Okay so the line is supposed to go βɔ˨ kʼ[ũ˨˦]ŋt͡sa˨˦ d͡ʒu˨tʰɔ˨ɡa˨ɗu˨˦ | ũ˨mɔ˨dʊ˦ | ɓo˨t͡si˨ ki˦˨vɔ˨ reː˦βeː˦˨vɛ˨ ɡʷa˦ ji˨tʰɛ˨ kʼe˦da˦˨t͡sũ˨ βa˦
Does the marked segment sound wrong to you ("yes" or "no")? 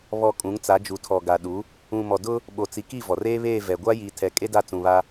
no